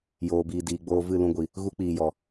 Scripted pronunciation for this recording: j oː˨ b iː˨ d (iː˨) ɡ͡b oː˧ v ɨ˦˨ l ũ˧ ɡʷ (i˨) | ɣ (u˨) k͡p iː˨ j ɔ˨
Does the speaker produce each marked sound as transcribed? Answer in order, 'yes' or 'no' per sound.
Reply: yes, yes, no

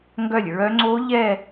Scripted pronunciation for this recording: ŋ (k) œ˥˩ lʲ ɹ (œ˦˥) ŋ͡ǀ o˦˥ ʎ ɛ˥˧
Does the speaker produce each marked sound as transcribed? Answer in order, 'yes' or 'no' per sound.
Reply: no, yes

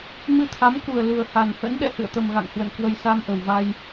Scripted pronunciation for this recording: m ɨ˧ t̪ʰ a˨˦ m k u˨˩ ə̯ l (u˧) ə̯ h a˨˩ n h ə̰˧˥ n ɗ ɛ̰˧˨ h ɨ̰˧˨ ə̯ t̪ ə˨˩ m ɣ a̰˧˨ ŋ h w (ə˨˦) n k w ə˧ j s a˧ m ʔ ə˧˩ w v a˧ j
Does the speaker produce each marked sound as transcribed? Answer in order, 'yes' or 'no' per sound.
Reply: no, no

